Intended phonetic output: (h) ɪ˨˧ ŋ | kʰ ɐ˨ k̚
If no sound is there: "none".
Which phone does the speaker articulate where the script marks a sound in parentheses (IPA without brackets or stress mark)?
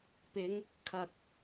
p